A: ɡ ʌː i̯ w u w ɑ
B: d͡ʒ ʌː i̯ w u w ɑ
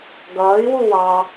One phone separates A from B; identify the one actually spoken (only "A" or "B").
A